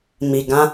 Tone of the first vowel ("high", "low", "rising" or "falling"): low